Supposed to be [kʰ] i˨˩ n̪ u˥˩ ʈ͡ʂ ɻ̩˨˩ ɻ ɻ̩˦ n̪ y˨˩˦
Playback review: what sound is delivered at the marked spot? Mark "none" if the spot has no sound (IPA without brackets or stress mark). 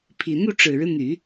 pʰ